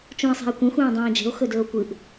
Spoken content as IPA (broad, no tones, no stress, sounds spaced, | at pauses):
t͡ʃ ũ e̯ sˤ a̤ e̯ kʷ ẽ xʷ ẽː dˤ ẽː d͡ʒ e̤ o̯ x ɵ d ɵː o̯ kʷ ɨ ʔ